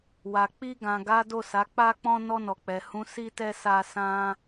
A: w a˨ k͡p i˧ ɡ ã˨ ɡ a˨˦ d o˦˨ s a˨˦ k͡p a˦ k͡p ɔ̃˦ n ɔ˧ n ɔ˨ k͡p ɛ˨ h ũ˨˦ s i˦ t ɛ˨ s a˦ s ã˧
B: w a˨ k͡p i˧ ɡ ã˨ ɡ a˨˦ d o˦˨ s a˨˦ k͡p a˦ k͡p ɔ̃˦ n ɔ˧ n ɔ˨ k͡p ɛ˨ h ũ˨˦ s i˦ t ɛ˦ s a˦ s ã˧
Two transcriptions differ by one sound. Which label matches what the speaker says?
B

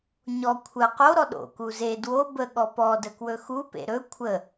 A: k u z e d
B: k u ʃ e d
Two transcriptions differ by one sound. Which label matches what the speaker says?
A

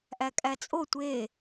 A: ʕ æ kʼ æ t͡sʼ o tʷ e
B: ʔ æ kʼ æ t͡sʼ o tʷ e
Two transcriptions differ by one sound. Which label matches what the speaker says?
B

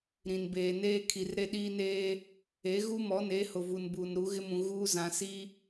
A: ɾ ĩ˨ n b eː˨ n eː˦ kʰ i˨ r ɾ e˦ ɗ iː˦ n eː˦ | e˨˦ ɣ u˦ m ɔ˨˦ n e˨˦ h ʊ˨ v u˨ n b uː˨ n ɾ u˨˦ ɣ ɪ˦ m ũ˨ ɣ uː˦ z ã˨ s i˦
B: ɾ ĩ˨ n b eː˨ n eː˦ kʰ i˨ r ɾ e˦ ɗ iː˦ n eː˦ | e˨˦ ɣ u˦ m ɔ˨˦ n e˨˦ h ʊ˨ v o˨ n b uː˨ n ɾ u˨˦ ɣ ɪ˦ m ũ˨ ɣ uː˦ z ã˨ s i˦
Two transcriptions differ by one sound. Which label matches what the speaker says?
A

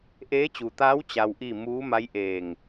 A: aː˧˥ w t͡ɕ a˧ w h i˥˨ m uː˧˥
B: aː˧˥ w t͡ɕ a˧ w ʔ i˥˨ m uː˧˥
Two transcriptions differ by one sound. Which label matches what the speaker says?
B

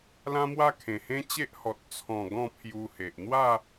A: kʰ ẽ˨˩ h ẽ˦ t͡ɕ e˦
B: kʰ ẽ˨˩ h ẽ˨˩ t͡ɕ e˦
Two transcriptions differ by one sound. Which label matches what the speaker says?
A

